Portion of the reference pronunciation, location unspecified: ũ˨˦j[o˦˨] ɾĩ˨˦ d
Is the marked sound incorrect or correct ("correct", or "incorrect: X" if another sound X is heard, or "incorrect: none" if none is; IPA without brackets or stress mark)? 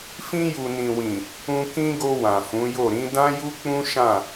correct